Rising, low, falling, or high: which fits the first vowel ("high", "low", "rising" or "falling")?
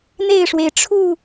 falling